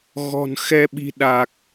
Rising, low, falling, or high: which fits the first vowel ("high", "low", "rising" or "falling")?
low